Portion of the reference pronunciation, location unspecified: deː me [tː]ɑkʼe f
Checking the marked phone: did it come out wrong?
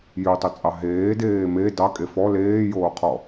yes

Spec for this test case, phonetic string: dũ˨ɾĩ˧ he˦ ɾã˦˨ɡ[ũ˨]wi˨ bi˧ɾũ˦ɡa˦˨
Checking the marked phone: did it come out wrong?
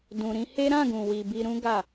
no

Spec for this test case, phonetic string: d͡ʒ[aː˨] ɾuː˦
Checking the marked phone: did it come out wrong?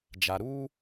yes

